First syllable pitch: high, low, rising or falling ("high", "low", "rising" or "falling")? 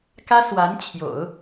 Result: high